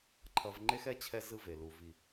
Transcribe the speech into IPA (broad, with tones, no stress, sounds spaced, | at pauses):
ǃʰ ʌ˨ v ŋ͡ǃ e˦ x ɛ˦ t͡ɕʰ ɛ˦ z ɯ˦ v e˨ l u˦ v i˦˨